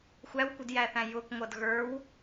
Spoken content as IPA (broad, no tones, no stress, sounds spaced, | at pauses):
xʷ æ w kʷ ɪ d j æ θ æ̃ j ʊ k ŋʷ ʌ d ɣ ə˞ w